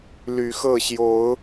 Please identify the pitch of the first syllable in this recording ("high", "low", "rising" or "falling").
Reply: low